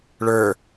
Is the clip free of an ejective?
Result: yes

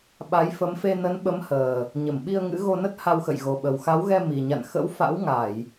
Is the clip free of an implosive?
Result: no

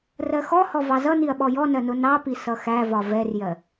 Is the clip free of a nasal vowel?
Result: yes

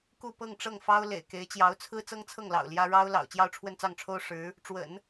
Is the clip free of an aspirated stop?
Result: no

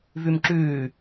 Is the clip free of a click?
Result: no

